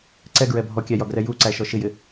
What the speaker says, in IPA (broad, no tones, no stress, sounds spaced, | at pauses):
ǀ ɛ ɡ ɹ ɛ bʱ ɔ kʲ æ j ɒ ɡ r ɛ j u ǀ æ ʃ ɔ ʃ ɪ j ɪ